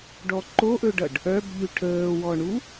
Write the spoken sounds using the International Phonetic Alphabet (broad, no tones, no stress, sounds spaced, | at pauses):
ɖ ɔ ǃ o ʔ ɵ ɖ ʌ ɖ | œ b ʎ ʉ ʈʰ əː w ɔ ɳ u